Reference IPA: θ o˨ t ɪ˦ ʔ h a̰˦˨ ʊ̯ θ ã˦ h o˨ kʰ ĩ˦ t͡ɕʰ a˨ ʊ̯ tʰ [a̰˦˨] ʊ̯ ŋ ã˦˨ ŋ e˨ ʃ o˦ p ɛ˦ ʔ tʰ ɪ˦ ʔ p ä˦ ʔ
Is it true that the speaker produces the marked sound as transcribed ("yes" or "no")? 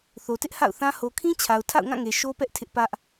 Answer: yes